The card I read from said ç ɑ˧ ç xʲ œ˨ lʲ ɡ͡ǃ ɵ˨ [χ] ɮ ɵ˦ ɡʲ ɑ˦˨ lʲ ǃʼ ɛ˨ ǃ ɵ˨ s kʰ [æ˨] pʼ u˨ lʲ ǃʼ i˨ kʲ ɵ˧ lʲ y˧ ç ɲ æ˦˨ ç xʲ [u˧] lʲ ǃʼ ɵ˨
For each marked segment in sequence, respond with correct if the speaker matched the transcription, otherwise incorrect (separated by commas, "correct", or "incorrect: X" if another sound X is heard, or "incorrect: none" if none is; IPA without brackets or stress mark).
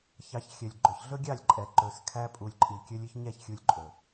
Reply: incorrect: ç, incorrect: æ˧, correct